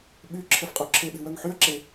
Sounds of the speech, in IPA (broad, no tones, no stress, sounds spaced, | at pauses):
ɓ y ǁʰ ɛ f qʼ o ǁʰ e ɓ e̤ w œ ŋ ħ y ɐ̯ ǁ e